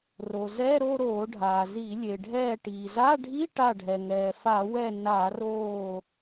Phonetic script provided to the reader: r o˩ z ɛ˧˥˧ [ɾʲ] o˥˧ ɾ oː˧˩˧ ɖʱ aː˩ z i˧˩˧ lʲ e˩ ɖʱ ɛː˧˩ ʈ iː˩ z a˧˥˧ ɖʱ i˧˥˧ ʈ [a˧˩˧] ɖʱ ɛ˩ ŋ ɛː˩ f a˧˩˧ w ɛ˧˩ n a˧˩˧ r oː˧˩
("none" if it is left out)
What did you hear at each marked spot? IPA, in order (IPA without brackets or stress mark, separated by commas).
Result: ɾ, a˧˩